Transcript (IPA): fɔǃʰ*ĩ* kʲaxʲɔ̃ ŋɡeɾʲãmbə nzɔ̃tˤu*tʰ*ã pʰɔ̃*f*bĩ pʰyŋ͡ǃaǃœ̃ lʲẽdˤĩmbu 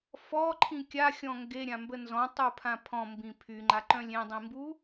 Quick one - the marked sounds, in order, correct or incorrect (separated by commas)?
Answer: correct, incorrect, incorrect